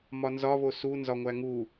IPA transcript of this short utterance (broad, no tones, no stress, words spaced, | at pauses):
mɒnzɒβo sunzɒ ŋʷæŋu